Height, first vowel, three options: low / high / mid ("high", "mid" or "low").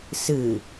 high